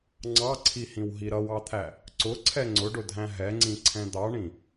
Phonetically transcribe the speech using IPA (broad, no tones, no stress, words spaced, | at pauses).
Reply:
ŋ͡ǀɑǀʰihĩw ɦiɾʌwɑt̪ʰæ | ǀʊ ǀʰɛŋ͡ǀʊɖʊdʱæ̃ ɦɛŋ͡ǀĩ ǀʰɛ̃d̪ɑɳĩ